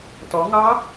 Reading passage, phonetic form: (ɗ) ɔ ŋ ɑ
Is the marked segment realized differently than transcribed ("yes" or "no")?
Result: yes